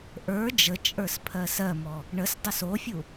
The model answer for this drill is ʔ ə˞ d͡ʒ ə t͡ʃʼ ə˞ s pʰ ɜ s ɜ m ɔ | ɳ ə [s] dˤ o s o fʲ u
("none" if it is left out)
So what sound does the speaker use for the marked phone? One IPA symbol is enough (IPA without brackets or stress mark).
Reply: s